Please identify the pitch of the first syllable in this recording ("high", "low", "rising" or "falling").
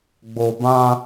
low